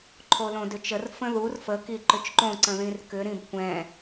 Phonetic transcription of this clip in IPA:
ǃʰ o l õ d ʏ t͡ʃ ə r f ə̃ ð u r f ə k i ǃ ʏ t͡ʃ ǃ õ ǀ ə̃ ð ĩ r k ʏ ɾ ĩ b kʷ ɛ̃

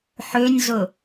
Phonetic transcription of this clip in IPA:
ħ ø nʲ z ʊ

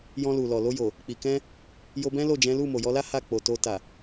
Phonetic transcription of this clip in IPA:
j ɔ̃˧ l u˨ l ɔ˨ l o˧ j o˨ | k͡p i˨ k ɛ̃˧ | j o˧ b ɛ̃˦ l o˦˨ d͡ʒ ɛ̃˨˦ l u˦˨ m o˨ j ɔ˧ l a˦ h a˦˨ k͡p o˨ t o˧ t a˨

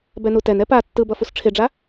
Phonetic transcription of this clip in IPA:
b ɛ n u t ɛ n ɛ p a tː ɯ b ʌ f u s ʈ͡ʂʰ e ɖ͡ʐ a

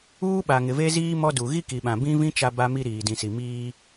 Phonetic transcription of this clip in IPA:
uː˦ ɓ a˨ ŋ ɪ˨ v e˦ z iː˦ m ɔ˦ d u˨ ɣ i˦ k i˨ ɓ ã˨ b ĩ˦ v ĩ˦ t͡ʃ a˦ b a˦ m i˦ ɾ iː˨ d ĩ˨ s i˨ m iː˦

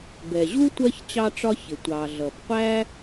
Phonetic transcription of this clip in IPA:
b ɛ˩ ʑ u˥ tʷ ɜ˦ ç t͡ɕ ɑ˦ ʈ͡ʂ ɒ˦ ç ɪ˩ tʷ ɑ˩ ɮ ʌ˩ b qʷ æ˥

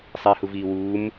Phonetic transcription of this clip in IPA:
sˤ i h u v iː w uː m

